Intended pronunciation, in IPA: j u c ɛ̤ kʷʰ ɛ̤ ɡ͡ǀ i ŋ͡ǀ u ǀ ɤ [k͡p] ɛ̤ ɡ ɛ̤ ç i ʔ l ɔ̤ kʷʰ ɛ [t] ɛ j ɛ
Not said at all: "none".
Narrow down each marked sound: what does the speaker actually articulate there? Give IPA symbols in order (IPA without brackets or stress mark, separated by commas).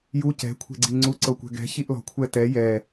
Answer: kʷ, t